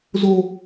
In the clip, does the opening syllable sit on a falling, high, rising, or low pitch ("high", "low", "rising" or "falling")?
high